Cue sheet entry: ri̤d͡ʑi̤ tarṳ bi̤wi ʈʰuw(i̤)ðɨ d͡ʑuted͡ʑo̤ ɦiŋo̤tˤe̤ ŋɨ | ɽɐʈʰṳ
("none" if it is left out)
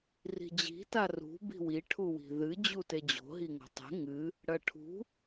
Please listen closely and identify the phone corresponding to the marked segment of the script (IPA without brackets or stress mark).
i̤